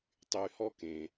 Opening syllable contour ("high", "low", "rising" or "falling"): low